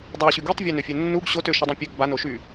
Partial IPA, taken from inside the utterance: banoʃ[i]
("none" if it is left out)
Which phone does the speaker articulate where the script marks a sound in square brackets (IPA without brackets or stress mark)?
y